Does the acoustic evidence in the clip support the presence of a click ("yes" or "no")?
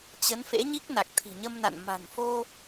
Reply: no